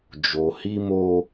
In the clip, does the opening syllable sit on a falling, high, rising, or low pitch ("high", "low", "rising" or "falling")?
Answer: low